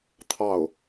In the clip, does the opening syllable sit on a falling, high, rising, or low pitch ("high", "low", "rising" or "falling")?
falling